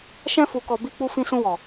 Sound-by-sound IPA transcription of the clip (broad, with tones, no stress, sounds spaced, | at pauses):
ʃ ɛ̃˧ f u˨ k ɔ˨ b i˧ k͡p u˧ f ĩ˧ s ũ˧ w ɔ˨